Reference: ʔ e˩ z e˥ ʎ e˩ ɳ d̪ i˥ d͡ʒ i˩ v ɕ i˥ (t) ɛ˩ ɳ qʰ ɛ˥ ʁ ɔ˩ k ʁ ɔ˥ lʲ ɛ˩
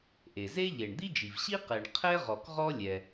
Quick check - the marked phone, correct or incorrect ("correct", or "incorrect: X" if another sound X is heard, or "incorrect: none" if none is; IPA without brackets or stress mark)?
incorrect: q